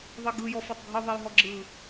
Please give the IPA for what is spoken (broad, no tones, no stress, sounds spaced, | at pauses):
ðˤ e ɡ ɯ j ɔ f a tˤ ɡʱ ɯ ðˤ e j ɦ ɔ ɡ͡ǁ ɯ